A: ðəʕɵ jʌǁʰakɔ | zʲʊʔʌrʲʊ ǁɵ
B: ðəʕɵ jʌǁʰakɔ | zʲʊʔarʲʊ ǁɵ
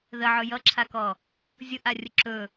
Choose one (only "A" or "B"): B